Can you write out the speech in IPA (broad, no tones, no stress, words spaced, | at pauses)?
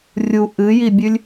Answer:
rʲu ʔɨjibʲʉlʲ